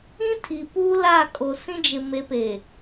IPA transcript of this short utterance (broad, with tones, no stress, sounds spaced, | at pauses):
ĩ˦ tʰ i˨ p uː˦ l a˦˨ kʼ o˨ s ĩ˦ d͡ʒ ɪ˨ m e˨˦ p e˨